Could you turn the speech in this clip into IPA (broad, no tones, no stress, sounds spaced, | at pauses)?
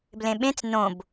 b l ẽ ɓ ẽ t͡s n õ b